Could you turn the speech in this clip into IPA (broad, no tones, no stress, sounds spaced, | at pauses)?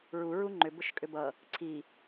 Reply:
ɹ u ɹ u ŋ͡ǃ ʏ b ʊ ʃ kʼ ʏ b ʌ | ǀʰ i